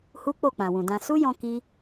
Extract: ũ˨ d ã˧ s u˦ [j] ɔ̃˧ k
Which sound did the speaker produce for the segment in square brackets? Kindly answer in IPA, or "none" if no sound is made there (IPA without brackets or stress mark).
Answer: j